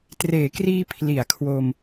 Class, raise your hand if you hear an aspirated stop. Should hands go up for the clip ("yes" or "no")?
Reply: yes